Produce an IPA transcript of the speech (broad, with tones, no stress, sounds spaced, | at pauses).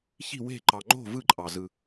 ç i̤˥˧ w e̤˥˧ ǃ ɑ˧ ŋ͡ǃ o̤˥˧ v ɯ˥˧ ǃʼ ɑ˧ z ɯ˧